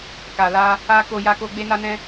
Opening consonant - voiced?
no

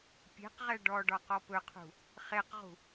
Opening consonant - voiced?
no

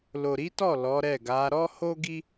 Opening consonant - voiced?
yes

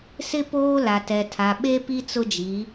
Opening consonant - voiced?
no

